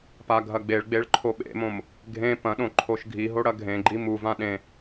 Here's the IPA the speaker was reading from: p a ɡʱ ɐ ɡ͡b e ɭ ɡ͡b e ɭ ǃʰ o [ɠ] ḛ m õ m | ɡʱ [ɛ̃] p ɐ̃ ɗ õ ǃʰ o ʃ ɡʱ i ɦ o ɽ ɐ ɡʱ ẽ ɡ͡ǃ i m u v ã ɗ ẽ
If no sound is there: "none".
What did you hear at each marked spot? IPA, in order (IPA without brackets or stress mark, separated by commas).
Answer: ɓ, ẽ